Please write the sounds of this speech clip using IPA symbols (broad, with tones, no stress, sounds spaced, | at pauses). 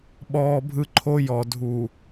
ɓ ɔː˨ bʱ ɯ˨ ǃʰ o˦ j ɔ˨ dʱ u˨